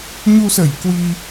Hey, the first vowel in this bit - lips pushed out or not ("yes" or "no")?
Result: yes